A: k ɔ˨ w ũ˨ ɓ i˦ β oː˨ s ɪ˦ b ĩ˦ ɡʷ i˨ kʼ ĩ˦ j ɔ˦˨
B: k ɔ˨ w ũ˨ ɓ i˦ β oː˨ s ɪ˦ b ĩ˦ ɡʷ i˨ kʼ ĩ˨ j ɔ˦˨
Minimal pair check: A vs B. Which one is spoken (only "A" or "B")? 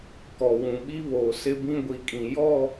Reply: B